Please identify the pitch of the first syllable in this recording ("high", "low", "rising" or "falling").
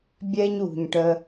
high